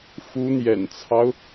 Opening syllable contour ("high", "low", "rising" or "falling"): rising